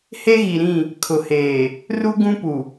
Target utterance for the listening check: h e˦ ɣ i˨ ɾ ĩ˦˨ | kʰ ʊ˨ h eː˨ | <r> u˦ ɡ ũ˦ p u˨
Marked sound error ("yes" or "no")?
no